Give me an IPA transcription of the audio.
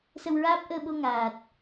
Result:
s ə˧ w ɹ aː˦˥ p̚ ʔ əː˧ ɓ o˧ ŋ aː˨˩ t̚

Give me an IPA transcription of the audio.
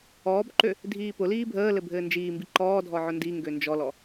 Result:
ɔː b ǃ ø | dʱ iː p ʊ l iː bʱ əː l ɘ bʱ ɘː n d͡ʒ iː m b i ǃ ɔː dʱ ɔ ʕ ʊ n d i ŋ ɡ ø n d͡ʒ ɔ l ɔ

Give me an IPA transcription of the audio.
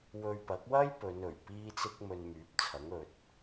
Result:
w ɵ˧ ɥ p ɐ˨˥ k̚ w ɐ˥ j p ɵ˨˧ n ɵ˨˩ ɥ p iː˥ t͡s ɪ˥ k̚ m ɵ˧ n m yː˨˥ p̚ t͡sʰ ɐ˨˥ ŋ ɵ˨ t̚

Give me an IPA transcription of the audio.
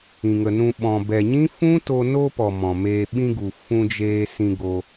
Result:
ĩ˨ ŋ ə˨ n ũ˧ ɓ ɔ̃˨ b ɛ˨ ɲ ĩ˦ f ũ˦ t o˧ n o˧ p ɔ˨ m ɔ̃˨ m eː˧ ɓ ĩ˧ ɡ u˨ f ũ˧ d͡ʒ eː˧ s ĩ˧ ɡ o˧

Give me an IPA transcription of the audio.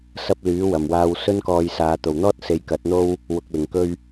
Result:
s ɐ˧ p̚ l yː˨˥ w ɐ˨˩ m w aː˧ w s ɵ˥ n k ɔː˧ j s aː˨˧ t̪ o˨˩ w n̪ ɔː˥ t̚ s e˧ j k ɐ˨˥ t̚ n̪ o˥ w | w ʊ˨ k̚ l ɪ˨˩ ŋ k ɵ˧ ɥ

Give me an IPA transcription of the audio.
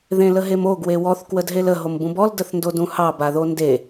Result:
ð ẽ l ə ɦ e m o ɡ w e w ɔ θ k w ə d ɦ e l ə ɦ o m b ũ b ɔ l d ə θ n d o d ũ h ɑ b a ð o n d e

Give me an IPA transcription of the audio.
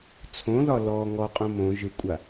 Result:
t͡sʰ õ ð ɒ l ɔ ŋ ɔ qʼ õ m õ ʒ ɯ kʷʼ a

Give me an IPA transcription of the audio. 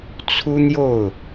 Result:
t͡sʰ u˥ n̪ j o˥˩ ʊ̯

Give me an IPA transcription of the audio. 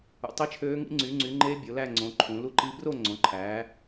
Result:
ṵ˩˧ tˤ i˦˥ t͡ʃʰ øː˦˥ ŋ ḭ˦˥ ŋ͡ǀ y˩˧ ŋ͡ǀ y˩˧ ŋ͡ǃ e˦˥ bʲ o˩˧ l æ˥˧ ŋ͡ǀ õ˩˧ ǃʰ ũ˩˧ l u˥˧ ǃ i˦˥ b r o˥˧ ŋ͡ǀ õ˩˧ ǃʰ æː˩˧

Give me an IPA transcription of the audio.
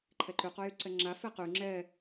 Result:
ǃʰ ɛ ǃ y q o j y ǀ ɛ ŋ͡ǁ a f e q y ŋ͡ǁ ɛ

